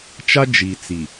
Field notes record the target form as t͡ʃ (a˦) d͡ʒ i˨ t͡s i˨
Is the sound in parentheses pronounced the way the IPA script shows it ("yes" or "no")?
yes